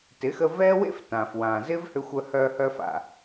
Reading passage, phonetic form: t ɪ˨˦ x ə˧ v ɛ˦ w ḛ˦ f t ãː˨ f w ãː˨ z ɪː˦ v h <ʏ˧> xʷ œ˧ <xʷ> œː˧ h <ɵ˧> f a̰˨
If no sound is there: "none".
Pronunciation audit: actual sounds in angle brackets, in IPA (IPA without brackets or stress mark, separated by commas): ʏ˧, h, œ˧